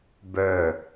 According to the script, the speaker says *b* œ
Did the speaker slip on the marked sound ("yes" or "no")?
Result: no